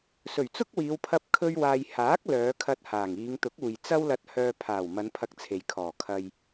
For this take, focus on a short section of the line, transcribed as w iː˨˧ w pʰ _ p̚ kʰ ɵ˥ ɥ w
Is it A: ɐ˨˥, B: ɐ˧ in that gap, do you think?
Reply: B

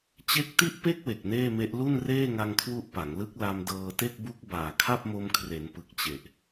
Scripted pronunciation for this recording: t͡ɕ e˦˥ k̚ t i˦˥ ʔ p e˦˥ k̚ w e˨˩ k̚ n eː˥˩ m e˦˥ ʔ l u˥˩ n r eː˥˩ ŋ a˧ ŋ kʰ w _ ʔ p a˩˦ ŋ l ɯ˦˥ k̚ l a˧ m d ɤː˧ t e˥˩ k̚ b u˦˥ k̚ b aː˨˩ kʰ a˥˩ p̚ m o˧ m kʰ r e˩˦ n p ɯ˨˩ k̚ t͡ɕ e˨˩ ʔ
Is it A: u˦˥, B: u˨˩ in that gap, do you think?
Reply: A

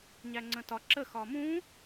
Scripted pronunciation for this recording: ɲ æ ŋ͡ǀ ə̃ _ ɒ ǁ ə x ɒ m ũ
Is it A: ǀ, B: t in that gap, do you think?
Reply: B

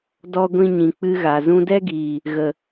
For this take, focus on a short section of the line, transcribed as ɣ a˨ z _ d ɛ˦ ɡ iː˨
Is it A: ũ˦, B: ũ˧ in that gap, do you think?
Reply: B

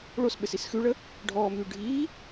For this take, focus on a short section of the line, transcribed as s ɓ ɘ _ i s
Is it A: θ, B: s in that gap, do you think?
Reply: B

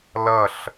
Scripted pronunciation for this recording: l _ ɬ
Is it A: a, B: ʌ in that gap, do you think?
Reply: B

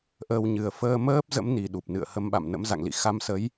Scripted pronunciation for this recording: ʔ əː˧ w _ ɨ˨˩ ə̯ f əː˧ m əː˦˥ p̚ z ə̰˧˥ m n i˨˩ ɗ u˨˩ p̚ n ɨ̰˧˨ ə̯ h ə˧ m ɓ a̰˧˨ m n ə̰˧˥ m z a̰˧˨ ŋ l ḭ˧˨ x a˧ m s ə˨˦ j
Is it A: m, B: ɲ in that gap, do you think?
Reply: B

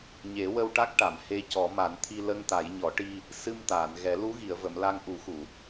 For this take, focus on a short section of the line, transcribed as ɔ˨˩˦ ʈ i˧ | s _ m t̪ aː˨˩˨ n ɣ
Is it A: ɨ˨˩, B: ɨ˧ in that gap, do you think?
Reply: B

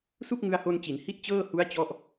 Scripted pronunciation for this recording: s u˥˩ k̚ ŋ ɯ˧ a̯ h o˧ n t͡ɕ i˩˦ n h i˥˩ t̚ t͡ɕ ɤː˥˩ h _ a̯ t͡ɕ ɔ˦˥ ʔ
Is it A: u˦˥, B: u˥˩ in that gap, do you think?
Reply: A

